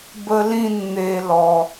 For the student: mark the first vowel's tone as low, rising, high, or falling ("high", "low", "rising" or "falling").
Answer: high